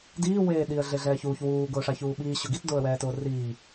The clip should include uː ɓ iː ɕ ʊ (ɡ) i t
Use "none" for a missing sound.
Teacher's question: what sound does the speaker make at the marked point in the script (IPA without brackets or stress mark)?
ɡ